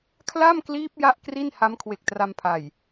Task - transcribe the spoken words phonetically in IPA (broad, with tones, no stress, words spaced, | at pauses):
kʰla˥˩mkliː˦˥p̚ ja˥˩ʔkri˥˩n ha˦˥mkʰwe˨˩k̚tra˧mpʰa˨˩j